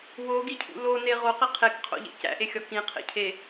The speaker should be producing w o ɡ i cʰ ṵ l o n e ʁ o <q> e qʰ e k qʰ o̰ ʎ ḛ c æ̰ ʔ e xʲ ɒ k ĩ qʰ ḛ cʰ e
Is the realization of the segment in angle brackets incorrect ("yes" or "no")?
no